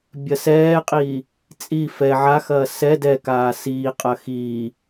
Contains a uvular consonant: yes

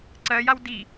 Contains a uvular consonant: no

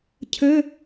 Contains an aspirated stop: yes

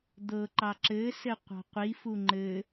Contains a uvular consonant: yes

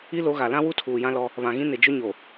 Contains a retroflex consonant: no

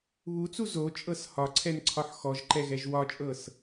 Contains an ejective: yes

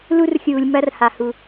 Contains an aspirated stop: no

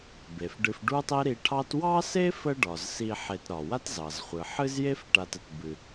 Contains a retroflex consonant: yes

